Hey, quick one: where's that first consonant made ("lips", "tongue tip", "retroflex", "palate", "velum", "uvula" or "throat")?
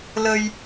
tongue tip